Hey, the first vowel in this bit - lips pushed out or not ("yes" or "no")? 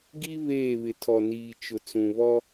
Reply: no